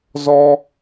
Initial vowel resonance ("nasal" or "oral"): oral